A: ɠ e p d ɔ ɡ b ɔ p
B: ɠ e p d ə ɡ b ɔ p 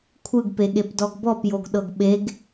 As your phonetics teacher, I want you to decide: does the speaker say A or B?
A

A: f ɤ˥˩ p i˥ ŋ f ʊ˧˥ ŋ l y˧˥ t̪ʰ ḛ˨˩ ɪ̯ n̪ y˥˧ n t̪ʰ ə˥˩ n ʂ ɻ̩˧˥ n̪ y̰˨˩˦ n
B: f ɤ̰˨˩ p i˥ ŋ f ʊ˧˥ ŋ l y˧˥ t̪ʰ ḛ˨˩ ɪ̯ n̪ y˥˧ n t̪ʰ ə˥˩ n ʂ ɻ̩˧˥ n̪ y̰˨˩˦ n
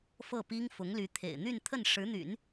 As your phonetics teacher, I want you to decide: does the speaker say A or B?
A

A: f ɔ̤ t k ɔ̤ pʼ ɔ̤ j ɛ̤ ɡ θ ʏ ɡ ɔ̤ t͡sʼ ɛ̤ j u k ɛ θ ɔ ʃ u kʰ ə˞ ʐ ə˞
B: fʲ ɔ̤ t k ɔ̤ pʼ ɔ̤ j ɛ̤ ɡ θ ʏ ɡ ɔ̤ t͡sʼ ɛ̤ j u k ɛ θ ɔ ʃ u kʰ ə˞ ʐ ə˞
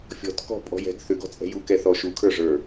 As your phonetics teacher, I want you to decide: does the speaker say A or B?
B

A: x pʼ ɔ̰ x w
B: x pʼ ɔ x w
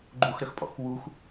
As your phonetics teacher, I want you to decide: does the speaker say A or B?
A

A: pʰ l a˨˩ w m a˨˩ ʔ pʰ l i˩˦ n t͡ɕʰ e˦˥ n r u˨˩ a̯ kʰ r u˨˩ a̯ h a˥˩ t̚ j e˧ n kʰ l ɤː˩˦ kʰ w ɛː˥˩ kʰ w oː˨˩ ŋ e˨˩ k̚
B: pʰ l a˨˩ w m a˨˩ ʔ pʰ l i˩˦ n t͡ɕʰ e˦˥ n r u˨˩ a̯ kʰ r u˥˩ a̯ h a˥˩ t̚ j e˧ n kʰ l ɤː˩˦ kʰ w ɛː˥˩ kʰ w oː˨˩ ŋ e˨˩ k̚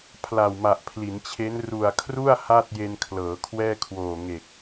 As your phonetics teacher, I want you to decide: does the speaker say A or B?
B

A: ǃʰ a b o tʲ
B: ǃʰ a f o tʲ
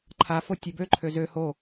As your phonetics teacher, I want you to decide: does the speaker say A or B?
B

